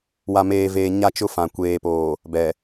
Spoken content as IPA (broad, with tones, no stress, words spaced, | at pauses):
wa˨meː˨veː˨ ɲa˦t͡ʃʊ˦fã˨ kʷeː˨poː˨ | bɛ˨